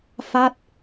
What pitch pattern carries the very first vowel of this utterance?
falling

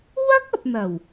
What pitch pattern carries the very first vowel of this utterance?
high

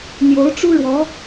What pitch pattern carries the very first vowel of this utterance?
rising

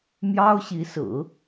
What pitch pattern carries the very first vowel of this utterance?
high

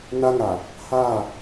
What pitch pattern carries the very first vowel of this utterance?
high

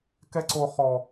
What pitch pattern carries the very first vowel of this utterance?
high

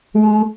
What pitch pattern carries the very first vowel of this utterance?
high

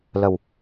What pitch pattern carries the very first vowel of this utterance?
low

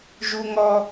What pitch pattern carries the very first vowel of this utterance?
high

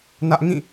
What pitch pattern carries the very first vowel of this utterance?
high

